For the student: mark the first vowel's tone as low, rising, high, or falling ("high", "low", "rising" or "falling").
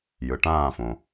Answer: low